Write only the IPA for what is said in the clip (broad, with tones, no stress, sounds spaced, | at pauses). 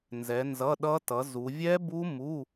n z ɛ˨˥ n z ʌ˧˥˧ ɗ ʌ˦˥ t ʌ˨˥ z u˨˥ vʲ ɛ˦˥ b u˦˥ m u˧˥˧